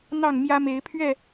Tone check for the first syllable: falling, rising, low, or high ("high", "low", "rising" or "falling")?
falling